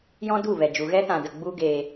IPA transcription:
j ɔ̃˦ d u˦˨ v ɛ˨ d͡ʒ u˨ ɣ ɛ˦ t ã˨ d ə˨ ɡ͡b u˦ ɡ eː˧

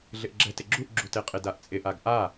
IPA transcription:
ɮ ɪ ʔ ɡ͡ǁ ɛ t ɪ ɡ͡ǁ u ʔ ɡ͡ǁ u t e qʼ ɪ d a ʔ t͡sʼ ɪ ʔ a ɡ ʔ a

